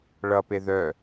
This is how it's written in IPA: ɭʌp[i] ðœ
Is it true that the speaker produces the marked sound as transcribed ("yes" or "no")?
no